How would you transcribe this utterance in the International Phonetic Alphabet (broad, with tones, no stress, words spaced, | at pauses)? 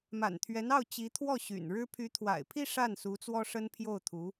ma̰˨˩nt̪ʰɥɛ˧˥nɑ˥˩ʊ̯ t͡ɕi˧˥t̪ʰwɔ˥˩ɕy̰˨˩nɻɻ̩˥ pʰy˧˥t̪ʰwa̰˨˩ɪ̯pʰi˥˧ ʂa˥˩nsu˧˥ t͡swɔ˥ʂə˥npʰjo˥˩ʊ̯t̪ʰu˧˥